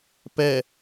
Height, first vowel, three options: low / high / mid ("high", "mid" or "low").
mid